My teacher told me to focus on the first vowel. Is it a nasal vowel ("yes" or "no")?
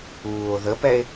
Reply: no